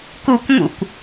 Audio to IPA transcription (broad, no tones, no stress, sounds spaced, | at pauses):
k u kʷ ŋ ṵ kʷ